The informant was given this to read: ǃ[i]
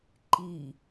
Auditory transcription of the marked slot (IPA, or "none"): i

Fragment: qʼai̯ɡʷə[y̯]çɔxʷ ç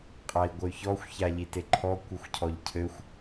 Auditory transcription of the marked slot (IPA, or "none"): y̯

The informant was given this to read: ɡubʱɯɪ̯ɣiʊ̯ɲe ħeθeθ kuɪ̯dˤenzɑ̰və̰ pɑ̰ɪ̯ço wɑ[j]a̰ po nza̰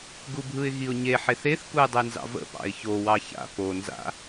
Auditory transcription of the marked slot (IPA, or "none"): ç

